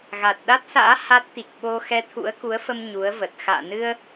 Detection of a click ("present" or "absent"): absent